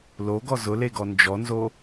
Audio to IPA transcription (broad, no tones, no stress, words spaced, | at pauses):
loɡɔ zʊleɡɔ nd͡ʒɔnzo